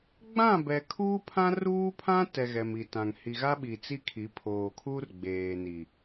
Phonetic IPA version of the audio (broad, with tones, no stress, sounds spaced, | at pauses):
ɡ͡b ã˦˨ b ɛ˨ kʰ uː˦ pʰ ã˦ r uː˦ pʰ ã˦ t ɛ˨ ɣ ɛ˨ m i˨ t ã˨ ŋ h i˨ ɣ a˦ ɓ i˨ t͡s i˦ kʰ i˨˦ pʰ oː˨ kʰ uː˦ r ɡ͡b eː˨ n i˨